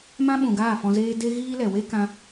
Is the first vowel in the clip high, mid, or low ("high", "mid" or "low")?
low